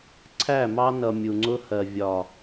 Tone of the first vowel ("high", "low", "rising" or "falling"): falling